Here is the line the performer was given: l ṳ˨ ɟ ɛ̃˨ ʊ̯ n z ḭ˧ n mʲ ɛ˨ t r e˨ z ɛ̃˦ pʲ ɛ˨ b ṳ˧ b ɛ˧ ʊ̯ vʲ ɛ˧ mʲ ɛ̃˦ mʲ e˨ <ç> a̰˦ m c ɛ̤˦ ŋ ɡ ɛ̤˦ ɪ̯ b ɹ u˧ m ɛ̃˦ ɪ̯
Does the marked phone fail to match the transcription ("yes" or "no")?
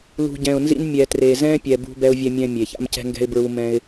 no